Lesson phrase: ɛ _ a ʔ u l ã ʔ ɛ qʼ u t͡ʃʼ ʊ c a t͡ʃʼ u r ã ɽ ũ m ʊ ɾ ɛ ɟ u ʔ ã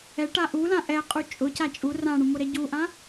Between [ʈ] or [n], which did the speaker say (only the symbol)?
ʈ